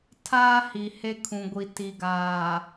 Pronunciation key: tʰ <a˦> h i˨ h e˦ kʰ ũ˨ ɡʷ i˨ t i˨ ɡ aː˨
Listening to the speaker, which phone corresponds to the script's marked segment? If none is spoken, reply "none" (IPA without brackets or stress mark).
aː˦